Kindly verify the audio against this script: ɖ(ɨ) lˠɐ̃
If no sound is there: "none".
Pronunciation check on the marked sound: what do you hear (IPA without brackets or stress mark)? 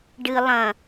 ɨ